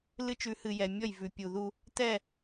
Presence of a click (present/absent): absent